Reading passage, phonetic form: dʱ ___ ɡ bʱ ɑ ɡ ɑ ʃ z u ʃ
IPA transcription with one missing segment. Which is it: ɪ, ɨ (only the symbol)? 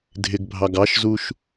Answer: ɪ